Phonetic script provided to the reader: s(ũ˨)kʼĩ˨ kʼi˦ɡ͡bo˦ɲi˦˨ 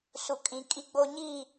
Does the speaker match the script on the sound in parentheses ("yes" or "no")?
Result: no